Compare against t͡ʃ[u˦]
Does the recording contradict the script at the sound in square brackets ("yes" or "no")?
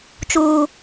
yes